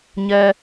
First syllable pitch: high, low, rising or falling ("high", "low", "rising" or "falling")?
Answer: high